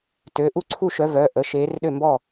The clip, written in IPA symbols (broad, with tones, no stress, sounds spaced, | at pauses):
t ø˩˧˩ ʔ u˥˩ ǀʰ u˥˩ ʃ œ˨˦ v œː˩˧˩ ʔ ə˩˧˩ ʃ eː˨˦ r ɗ ø˥˩ m b ɔː˥˩